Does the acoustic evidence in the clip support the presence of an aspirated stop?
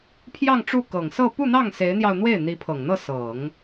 yes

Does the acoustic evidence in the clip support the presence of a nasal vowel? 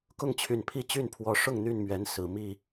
no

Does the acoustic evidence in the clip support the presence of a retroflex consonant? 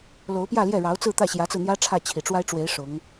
yes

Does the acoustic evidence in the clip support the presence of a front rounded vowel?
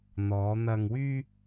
yes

